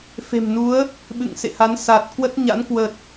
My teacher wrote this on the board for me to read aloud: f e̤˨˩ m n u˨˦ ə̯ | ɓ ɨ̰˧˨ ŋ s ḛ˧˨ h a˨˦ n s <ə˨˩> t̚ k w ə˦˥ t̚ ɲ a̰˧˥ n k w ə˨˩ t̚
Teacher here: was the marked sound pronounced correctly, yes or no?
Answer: no